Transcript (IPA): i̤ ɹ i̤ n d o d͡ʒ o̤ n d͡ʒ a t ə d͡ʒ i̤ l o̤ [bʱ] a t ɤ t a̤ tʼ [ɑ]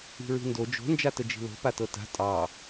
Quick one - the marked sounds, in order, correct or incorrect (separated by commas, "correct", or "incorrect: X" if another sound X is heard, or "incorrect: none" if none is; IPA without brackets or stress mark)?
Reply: incorrect: p, correct